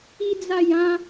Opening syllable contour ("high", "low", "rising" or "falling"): high